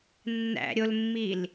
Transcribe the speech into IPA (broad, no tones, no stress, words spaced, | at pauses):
nːæ̰ɾʲolmːil